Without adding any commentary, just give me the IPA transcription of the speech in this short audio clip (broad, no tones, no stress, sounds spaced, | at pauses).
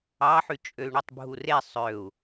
ɑ ħ y t͡ʃʼ ø y̯ ɳ u tˤ bʱ u r e sˤ ø u̯